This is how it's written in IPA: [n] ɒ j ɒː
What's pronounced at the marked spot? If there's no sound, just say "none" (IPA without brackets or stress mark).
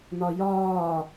n